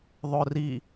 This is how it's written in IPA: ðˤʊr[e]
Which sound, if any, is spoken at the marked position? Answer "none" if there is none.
i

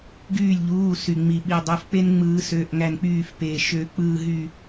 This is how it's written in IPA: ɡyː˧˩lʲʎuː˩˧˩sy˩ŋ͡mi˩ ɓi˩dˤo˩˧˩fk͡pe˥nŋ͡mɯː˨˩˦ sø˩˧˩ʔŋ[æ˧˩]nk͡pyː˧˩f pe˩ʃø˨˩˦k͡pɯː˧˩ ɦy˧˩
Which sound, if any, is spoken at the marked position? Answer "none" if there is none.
æ˧˩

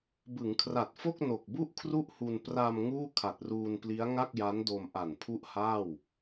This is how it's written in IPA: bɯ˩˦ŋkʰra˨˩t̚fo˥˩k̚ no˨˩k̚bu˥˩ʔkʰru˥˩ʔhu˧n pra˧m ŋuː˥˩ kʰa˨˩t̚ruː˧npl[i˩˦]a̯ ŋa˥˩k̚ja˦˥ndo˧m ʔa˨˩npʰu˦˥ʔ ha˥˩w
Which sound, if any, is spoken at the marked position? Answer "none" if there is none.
i˦˥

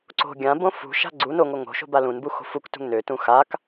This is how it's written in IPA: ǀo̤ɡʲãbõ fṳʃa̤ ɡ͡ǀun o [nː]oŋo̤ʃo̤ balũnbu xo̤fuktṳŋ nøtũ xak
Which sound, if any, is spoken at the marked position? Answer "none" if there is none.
ŋ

